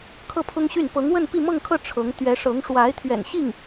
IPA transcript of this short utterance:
kʰ ɤ˥˩ pʰ ʊ˥ ŋ ɕ y˥˩ n p ɤ˧˥ ŋ w ə˥˧ n p i˥˧ m ɤ˥˧ ŋ kʰ ɤ˥˩ ʈ͡ʂʰ ɤ˧˥ ŋ t̪ ɥ ɛ˧˥ ʂ ɤ˧˥ ŋ ʂ w a˧˥ ɪ̯ t̪ʰ ɥ ɛ̰˨˩ n ɕ i˥˩ ŋ

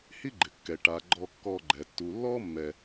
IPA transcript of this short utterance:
h i˦ ɡ͡ǃ ɪ˩ kː ɛ˩ ʈ a˩ ɡ͡ǃ ɔ˨ kː ɔ˨ ɡ͡ǃ ɛ˩ tː u˩ lː ɔ˦ mː ɛ˨

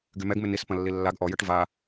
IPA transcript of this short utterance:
ɡ y m ɛ ɡ m ɪ n i s p ɐ̃ lː i lː a ɡ ʔ ɔ j ɐ ʈ v a

